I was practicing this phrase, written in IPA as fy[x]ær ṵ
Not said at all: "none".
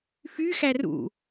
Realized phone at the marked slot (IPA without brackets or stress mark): x